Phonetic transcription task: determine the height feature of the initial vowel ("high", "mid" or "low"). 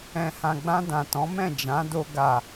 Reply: mid